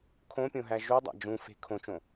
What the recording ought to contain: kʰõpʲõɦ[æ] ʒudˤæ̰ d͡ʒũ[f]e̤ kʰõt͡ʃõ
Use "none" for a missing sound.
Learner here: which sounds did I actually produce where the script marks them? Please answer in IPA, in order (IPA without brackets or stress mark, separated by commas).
æ, f